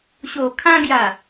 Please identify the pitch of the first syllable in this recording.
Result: low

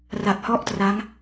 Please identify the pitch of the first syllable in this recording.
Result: low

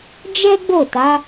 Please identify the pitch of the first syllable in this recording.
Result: high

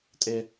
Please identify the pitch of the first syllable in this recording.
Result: high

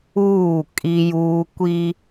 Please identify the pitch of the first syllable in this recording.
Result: falling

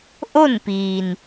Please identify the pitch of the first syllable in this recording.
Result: falling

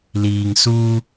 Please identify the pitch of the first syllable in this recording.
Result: low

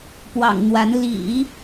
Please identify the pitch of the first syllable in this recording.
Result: low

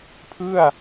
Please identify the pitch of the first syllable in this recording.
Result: falling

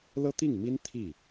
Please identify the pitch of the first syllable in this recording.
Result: high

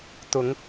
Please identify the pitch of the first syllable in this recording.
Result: rising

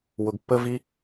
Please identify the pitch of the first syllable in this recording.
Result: low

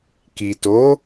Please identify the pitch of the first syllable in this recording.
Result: low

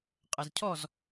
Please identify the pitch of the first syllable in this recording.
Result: low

